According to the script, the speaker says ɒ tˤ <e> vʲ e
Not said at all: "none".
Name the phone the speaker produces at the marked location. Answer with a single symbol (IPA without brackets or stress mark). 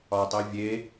i